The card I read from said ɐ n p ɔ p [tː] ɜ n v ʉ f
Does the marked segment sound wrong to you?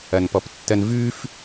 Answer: no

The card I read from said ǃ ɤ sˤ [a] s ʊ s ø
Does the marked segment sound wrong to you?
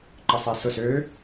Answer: no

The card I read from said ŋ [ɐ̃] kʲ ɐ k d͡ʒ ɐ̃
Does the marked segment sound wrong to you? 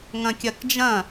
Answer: no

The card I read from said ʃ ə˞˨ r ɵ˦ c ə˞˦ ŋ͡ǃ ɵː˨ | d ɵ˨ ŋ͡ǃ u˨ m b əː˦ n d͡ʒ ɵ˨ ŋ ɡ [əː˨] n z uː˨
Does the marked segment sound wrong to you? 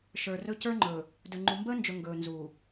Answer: yes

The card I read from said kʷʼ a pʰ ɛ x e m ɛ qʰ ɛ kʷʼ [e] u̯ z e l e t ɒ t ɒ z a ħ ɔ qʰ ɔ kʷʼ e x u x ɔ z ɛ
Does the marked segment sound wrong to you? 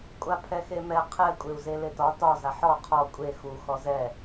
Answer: no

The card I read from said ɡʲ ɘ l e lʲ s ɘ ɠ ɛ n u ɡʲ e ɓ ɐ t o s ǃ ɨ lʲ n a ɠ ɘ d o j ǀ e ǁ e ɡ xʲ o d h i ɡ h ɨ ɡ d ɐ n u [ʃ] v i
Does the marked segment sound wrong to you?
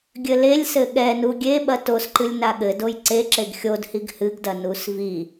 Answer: yes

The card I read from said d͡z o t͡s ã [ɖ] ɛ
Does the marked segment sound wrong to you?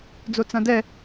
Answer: yes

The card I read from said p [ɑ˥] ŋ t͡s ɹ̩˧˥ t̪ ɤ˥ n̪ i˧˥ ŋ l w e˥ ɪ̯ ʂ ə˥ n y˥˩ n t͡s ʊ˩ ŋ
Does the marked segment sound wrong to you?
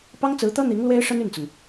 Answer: no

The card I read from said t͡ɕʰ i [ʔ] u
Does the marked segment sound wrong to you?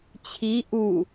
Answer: no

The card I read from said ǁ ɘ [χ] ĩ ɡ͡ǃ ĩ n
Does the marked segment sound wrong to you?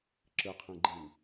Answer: yes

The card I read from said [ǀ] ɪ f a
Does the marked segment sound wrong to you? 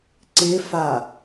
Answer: no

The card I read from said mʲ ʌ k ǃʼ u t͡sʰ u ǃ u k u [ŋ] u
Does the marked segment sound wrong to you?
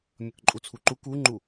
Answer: yes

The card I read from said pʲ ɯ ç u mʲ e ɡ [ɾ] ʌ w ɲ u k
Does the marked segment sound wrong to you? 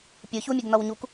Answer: yes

